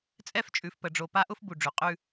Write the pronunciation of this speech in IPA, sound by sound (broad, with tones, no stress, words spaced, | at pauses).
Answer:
t͡sʼɛ˦ft͡ʃʼʉ˨fpə˨ ɖ͡ʐo˨pa˦ʔʊ˦f bu˨ɖ͡ʐʉ˨ qʼʉ˦